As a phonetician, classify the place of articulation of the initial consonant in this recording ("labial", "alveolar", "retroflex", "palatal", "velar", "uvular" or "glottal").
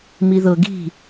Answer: labial